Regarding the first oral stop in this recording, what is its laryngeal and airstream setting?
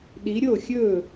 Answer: implosive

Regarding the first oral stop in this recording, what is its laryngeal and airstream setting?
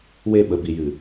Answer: implosive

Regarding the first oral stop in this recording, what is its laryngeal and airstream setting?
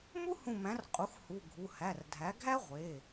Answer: ejective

